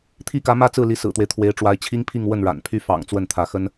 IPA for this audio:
t̪ʰ i˥ k ä˧˥ m ä˥ t͡s ɹ̩˥˩ l i˧˥ s ɹ̩˨˩ t̪ w e˦ ɪ̯ t̪ʰ w e˧˥ ɪ̯ ʈ͡ʂ w a˧˥ ɪ̯ t͡ɕʰ i˥ ŋ pʰ i˥˧ ŋ w ə˥˩ n ɻ a̰˨˩ n pʰ y˥ f ɑ̰˨˩ ŋ t͡s w ə˥˩ n t̪ʰ ä˧˥ x ə˥ n

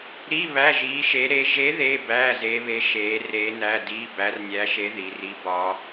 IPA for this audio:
ɾ i˧˥˧ β æ˧˥˧ ʒ iː˧˥ ʃ e˧˥ ɾ e˧˥ ʒ e˧˥ ð eː˧˥˧ b æː˧˥˧ z eː˧˥ β e˧˥ ʃ eː˧˥ r eː˧˥ n æ˧˥˧ d iː˧˥˧ b æ˧˥ r nʲ æː˧˥ ʃ e˧˥ ð i˩˧ r i˧˥ b ɒ˧˥

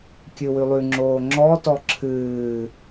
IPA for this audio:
kʲ ɨ w ʉ lˠ ʉ ŋ͡ǁ oː ŋ͡ǁ ɔ t ɔ ǁʰ ɨː

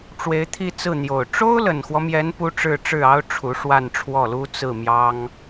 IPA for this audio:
ʈ͡ʂ w e˧˥ ɪ̯ t̪ʰ i˥˧ t͡s ɹ̩˥˩ n̪ j o˨˩ ʊ̯ ʈ͡ʂ o˥ ʊ̯ l ə˨˩ n x w ɔ˦ m j ɛ˧˥ n p u˧˥ ʈ͡ʂ ɻ̩˥˧ ʈ͡ʂ ɻ̩˥˩ ɑ˥ ʊ̯ ʈ͡ʂʰ u˧˥ ʂ w a˥˧ n ʈ͡ʂʰ w ɔ˥˩ l u˥ t͡s ɹ̩˥˩ m j ɑ˥ ŋ

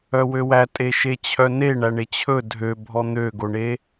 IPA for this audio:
œ w ø w æ tʼ e ʃ e t͡ɕʰ œ n e ɳ æ ɳ e t͡ɕʰ ɵ dʱ ø bʱ ɔ n̪ ø ɡ o ɳ e

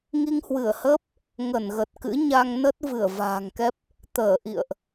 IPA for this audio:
ŋ i˧ ŋ h w ɨ˧˩ ə̯ h əː˦˥ p̚ | ŋ ə˧˩ n ɣ ə˨˩ t̚ k ɨ̰˧˥ ɲ a˧ ŋ n ə˦˥ t̚ v ɨ˧˩ ə̯ v a̤ː˨˩ ŋ k ɛ˦˥ p̚ | t̪ əː˧˩ ʔ ḭ˧˨ ə̯ ʔ

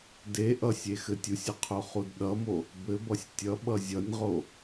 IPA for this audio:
d e ʔ ʌ sʲ e x ɘ tʲ u sʲ ʌ qʰ o χ u d ɗ ʌ m o | b ɘ b ʌ sʲ tʲ ʌ ɓ ʌ zʲ ʌ nʲ ʁ o

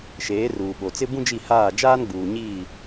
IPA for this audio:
ʃ eː˨˦ r uː˨ ɓ o˨ t͡s ɪ˦ b ũ˦ d͡ʒ i˦˨ h aː˦˨ d͡ʒ aː˦ n ɡ͡b uː˨ ɲ iː˦˨

